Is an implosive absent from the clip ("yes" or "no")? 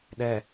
no